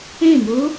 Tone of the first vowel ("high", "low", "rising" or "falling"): falling